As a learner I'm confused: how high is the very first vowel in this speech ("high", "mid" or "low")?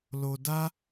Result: mid